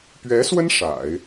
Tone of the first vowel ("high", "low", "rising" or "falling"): rising